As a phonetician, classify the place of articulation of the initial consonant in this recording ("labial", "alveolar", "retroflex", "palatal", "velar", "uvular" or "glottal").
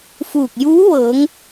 labial